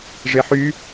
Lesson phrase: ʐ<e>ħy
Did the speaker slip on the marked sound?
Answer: no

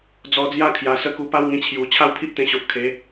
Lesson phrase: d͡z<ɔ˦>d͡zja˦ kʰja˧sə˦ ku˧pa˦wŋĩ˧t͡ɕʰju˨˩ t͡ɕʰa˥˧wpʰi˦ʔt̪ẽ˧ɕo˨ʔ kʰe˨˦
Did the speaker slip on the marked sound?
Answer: yes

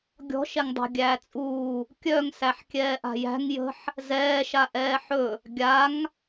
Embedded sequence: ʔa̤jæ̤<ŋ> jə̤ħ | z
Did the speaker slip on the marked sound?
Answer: no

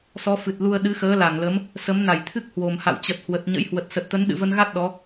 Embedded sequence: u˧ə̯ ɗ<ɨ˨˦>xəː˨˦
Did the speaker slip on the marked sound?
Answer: no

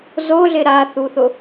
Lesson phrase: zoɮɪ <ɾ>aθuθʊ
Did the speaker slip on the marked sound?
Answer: no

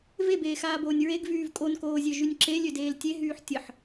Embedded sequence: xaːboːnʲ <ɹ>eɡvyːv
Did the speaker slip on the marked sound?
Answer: no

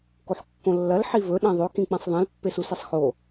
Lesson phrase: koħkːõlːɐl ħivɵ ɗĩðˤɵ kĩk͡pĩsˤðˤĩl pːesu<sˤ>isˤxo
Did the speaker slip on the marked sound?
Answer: yes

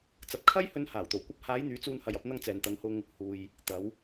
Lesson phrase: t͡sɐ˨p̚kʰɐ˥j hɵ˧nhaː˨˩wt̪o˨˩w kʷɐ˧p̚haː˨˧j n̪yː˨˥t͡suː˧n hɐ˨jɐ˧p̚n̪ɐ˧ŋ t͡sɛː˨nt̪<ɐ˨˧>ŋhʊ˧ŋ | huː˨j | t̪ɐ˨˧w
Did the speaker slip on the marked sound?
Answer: no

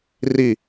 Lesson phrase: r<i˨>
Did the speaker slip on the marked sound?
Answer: no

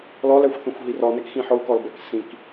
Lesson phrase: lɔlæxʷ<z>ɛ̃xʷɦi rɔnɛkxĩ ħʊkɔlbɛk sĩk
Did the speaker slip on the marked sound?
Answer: yes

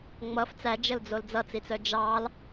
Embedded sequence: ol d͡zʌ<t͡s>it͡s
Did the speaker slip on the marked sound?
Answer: no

